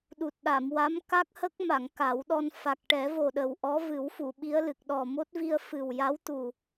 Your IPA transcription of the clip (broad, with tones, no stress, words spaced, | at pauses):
ɗu˨˩t̚ɗa˨˩˨mwa˧˥m ka˦˥k̚hə˦˥k̚ma˨˩˨ŋ ka˨˩˦wɗɔ˧n fa˨˩k̚ʈɛ˨˩˦vo˨˩ɗə˨˩w ʔɔ˧˥vɨ˨˩˦wfu˨˩˨ ɓi˧˥ə̯lɨ˨˩k̚ ɗɔ˨˩mo˦˥t̚ vi˧ə̯fɨ˨˩wja˧˥w t̪u˨˩